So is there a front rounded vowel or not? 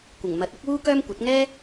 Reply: yes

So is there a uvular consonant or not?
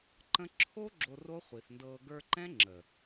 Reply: yes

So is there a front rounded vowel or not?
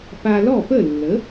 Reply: no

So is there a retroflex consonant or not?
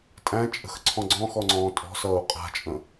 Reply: no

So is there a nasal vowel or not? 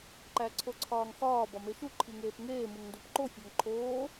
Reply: no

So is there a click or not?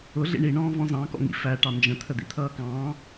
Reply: no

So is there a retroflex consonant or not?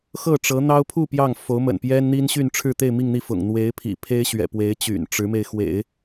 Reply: yes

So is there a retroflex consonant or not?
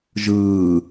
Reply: no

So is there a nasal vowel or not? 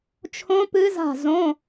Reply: yes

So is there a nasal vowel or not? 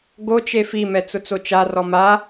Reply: no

